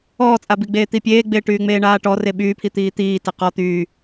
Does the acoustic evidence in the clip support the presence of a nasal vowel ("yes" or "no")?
no